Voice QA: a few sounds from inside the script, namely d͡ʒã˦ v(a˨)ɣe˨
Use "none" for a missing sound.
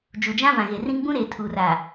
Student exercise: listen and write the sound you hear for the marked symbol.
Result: ã˨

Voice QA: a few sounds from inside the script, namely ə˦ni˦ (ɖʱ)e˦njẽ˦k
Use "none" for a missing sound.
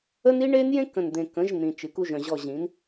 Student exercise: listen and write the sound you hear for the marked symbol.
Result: ɳ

